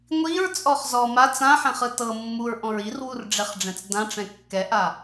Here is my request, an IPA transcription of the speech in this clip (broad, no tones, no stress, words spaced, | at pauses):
ŋʷiɹt͡sʼɔχ zɔ ma t͡sãħɛ̃χɯ tɤ mːuɹʔɔ̃ɹ irwurɖ͡ʐɛχɖ͡ʐɛ̃t͡s dãʈ͡ʂɛ̃ kːɛʔa